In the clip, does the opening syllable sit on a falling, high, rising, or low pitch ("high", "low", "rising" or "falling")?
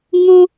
high